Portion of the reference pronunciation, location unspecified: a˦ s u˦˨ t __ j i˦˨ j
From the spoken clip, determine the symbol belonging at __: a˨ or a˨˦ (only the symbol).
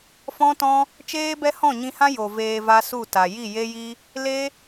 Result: a˨